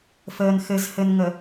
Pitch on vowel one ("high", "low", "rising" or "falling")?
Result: low